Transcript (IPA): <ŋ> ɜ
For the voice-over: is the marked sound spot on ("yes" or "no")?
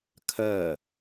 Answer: no